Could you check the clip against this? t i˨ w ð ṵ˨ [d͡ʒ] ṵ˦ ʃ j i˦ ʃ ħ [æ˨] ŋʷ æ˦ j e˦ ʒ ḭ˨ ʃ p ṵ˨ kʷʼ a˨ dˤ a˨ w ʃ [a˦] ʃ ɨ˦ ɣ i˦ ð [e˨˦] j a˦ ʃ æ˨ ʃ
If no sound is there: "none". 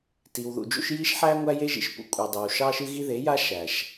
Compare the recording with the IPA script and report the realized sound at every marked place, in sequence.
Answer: d͡ʒ, æ˦, ɑ˦, e˨˦

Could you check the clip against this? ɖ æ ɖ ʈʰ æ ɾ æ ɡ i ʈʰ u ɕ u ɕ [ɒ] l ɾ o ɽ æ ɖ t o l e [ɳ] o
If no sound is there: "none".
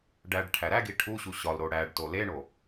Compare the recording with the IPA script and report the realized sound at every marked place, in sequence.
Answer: ɒ, ɳ

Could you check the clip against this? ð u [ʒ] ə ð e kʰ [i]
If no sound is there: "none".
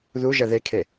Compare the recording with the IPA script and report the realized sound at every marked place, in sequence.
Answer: ʒ, e

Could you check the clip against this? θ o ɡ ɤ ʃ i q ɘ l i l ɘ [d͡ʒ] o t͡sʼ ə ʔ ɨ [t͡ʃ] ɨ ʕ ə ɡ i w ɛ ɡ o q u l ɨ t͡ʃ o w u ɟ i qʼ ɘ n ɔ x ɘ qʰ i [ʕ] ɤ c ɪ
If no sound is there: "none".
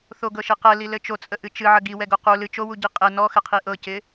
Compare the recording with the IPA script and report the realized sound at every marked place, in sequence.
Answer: t͡ʃ, t͡ʃ, ʔ

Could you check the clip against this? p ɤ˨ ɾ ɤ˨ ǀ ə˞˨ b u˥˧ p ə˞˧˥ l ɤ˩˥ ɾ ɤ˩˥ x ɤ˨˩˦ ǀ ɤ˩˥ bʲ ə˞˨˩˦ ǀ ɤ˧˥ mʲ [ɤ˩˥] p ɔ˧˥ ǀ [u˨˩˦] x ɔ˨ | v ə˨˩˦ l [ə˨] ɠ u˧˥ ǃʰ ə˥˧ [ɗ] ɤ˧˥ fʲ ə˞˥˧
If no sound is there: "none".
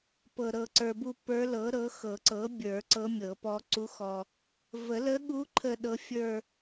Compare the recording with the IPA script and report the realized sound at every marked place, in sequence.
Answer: ɤ˨˩˦, u˧˥, ə˧˥, ɗ

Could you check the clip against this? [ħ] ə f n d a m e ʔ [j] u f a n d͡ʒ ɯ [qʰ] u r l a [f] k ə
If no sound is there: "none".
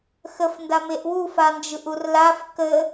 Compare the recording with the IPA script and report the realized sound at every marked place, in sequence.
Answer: x, w, ʔ, f

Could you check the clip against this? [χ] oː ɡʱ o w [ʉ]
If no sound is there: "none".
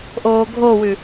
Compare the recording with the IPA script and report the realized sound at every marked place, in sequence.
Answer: ʔ, ʉ

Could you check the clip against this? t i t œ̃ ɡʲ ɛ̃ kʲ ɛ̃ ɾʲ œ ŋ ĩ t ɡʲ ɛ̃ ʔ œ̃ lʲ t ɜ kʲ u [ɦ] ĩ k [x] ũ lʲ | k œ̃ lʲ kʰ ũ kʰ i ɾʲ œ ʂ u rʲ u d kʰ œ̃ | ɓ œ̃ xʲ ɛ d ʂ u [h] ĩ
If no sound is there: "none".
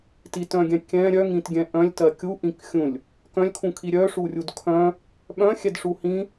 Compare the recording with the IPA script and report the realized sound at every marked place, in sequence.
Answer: ʔ, xʲ, h

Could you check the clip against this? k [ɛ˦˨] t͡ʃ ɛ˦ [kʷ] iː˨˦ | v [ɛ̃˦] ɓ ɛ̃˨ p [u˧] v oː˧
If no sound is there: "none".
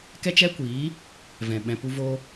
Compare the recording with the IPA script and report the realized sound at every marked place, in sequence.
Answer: ɛ˦, kʷ, ɛ̃˨, u˧

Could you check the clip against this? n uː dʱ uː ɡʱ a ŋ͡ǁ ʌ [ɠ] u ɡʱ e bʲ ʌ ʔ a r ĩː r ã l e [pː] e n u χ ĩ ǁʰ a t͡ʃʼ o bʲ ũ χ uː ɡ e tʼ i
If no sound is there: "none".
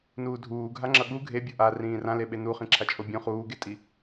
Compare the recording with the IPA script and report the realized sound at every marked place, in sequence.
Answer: ɠ, ɓ

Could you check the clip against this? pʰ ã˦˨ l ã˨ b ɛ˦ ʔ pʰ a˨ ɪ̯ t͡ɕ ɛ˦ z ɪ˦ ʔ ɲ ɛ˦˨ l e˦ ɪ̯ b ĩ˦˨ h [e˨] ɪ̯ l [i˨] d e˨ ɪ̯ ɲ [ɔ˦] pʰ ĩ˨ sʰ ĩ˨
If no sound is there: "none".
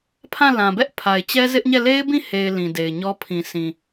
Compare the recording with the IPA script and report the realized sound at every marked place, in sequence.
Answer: e˨, ĩ˨, ɔ˦

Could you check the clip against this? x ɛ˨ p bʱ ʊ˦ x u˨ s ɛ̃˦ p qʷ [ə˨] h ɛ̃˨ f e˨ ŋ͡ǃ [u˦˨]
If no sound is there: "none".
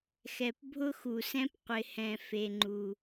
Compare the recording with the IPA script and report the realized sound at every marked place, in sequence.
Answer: ɪ˨, u˨

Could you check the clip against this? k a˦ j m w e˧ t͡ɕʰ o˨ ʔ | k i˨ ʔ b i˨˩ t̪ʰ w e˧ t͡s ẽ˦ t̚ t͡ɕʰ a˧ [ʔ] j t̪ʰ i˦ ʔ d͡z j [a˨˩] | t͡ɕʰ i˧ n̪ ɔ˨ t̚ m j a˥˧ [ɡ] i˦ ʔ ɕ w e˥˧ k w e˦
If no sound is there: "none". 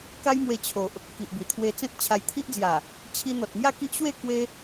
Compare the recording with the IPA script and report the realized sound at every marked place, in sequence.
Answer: none, a˨˩, k

